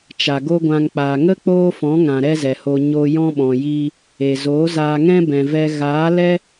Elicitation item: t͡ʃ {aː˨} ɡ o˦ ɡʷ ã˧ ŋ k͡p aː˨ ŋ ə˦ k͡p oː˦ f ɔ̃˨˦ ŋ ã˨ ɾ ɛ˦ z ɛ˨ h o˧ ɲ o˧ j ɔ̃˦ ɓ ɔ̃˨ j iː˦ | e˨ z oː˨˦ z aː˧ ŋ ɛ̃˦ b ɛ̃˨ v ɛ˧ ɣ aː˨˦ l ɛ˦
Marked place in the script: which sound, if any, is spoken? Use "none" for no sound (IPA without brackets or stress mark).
a˨